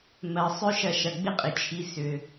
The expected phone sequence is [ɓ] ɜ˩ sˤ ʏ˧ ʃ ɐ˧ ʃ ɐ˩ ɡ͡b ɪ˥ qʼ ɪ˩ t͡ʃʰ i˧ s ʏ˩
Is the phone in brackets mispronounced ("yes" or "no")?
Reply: yes